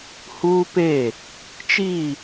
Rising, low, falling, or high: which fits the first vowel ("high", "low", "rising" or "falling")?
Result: high